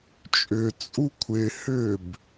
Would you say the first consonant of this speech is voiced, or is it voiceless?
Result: voiceless